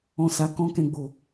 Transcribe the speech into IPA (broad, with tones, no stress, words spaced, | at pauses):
ɔ̃˧sa˧ kɔ̃˦kɛ̃˧ɡ͡bo˨